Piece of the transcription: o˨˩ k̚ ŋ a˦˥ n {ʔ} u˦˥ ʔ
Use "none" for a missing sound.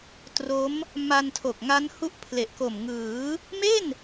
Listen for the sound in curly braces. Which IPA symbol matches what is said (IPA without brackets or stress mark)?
h